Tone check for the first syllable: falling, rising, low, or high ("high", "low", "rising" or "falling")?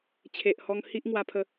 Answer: low